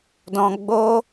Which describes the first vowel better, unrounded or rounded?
rounded